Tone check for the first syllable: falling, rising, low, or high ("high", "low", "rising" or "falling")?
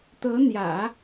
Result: rising